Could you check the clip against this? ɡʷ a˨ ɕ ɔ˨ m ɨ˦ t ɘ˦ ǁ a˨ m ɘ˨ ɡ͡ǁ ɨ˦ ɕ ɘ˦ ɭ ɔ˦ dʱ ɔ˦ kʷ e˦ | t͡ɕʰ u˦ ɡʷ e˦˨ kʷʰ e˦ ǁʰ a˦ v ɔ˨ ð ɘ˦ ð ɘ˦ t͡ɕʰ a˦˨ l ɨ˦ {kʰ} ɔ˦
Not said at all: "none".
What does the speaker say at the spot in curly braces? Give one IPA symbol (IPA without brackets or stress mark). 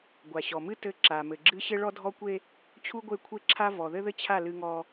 ŋ